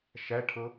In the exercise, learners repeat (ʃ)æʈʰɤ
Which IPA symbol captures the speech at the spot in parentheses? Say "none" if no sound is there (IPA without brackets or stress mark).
ʃ